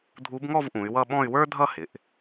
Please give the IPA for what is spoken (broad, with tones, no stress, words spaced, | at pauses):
dʱu˧˥bŋɔ˥˧vʔũ˩˧y̯ wʌ˥˧ ɓɔ̃˥˧y̯ wə˞˥dʱʌ˥˧hɪ˩˧ʔ